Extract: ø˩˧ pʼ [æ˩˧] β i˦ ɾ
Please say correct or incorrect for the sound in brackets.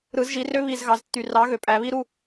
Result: correct